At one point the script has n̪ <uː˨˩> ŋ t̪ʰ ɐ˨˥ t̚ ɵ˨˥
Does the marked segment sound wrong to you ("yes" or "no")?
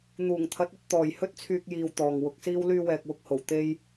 no